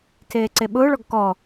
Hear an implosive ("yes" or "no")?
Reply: yes